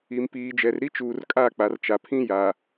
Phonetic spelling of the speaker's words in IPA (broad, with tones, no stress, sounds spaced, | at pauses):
i˨ m p iː˨ d͡ʒ ɛ˨ r ɾ i˦ t͡ʃ uː˨ r kʼ a˦˨ k͡p a˨ r t͡ʃ a˨ pʰ ĩ˦ j a˨